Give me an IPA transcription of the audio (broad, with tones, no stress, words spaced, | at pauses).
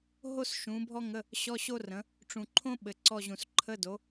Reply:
ɦo˥sʃũ˩˥bʱɔ˥ŋə˧˥˧ | ɕɔ˧˥˧ɕo˥rə̃˩˥ | ʈ͡ʂũ˨ǃʰõ˥ ɓɘ˨ǀɔ˦˨ʑũ˨s ǃʰə˧˥˧do˩˥